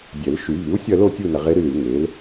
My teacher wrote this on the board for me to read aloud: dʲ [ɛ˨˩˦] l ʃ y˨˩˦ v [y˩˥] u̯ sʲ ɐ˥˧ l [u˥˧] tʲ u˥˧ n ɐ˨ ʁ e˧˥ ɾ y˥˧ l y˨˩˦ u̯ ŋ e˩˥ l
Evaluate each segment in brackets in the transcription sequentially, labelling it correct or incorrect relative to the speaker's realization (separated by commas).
correct, correct, incorrect